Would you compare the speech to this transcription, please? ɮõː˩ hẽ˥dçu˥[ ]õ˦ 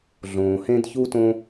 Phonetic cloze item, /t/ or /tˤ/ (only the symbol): t